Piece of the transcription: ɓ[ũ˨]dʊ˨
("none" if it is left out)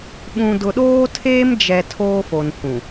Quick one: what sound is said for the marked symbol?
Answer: ũ˨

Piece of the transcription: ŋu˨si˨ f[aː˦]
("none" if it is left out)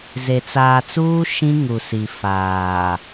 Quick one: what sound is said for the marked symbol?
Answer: aː˨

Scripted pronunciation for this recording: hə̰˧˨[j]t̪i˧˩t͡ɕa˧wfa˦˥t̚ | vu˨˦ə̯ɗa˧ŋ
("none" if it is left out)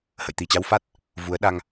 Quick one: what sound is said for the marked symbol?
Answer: j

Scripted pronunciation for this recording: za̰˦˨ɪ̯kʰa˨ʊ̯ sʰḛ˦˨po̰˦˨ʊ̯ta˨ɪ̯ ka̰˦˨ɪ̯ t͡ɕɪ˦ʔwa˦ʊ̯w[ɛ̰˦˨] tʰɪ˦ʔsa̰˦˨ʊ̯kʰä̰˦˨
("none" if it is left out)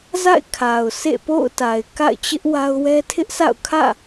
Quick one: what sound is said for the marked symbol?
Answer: ɛ˦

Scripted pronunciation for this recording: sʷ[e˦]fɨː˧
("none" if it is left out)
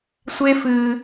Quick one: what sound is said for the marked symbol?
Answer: e˦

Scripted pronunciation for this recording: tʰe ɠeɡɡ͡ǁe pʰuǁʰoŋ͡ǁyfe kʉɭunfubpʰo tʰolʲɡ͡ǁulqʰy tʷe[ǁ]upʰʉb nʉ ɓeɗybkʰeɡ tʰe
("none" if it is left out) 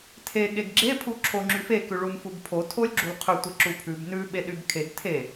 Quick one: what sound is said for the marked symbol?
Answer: ǁ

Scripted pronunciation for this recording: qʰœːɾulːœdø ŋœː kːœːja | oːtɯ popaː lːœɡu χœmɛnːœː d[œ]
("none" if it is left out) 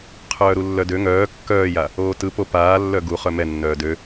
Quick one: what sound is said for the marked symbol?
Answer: ø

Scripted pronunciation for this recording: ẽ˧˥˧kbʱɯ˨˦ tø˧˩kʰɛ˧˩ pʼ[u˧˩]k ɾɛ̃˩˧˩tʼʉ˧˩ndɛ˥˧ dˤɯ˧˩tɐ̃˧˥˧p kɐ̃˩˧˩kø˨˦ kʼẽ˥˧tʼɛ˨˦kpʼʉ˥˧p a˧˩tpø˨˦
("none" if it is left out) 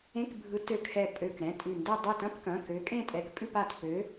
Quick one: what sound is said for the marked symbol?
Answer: ø˧˩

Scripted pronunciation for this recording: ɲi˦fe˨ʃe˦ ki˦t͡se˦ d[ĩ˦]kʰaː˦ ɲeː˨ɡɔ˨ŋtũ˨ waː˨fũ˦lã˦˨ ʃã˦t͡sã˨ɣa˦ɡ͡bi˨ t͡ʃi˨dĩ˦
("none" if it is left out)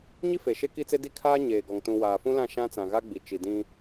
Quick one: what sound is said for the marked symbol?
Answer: i˦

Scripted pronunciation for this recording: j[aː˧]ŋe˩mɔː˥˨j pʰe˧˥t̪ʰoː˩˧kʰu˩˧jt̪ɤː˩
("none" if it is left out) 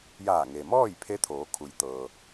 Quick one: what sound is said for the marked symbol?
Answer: aː˧˩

